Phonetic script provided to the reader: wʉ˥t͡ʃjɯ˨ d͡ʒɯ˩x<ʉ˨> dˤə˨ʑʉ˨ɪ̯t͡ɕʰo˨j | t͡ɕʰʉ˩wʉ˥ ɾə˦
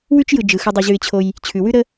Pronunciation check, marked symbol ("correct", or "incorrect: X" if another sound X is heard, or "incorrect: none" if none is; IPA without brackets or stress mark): correct